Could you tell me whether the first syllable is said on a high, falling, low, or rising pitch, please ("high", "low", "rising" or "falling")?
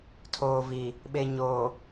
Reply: low